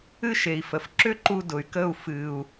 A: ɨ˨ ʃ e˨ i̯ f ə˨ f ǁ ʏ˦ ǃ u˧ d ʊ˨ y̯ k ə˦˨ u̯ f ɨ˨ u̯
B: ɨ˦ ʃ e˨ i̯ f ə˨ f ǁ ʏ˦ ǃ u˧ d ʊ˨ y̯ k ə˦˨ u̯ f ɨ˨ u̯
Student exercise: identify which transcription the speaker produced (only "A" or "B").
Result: B